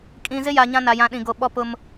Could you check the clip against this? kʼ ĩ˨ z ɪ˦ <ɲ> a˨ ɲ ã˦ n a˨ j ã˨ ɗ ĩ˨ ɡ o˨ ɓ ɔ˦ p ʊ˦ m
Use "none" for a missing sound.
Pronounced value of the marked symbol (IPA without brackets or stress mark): j